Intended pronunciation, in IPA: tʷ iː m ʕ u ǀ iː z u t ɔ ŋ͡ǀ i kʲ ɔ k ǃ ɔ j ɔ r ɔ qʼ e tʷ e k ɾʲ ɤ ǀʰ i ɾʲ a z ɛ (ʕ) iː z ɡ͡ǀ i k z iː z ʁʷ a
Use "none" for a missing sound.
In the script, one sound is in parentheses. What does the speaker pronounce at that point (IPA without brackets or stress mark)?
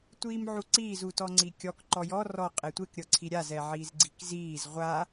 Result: ʕ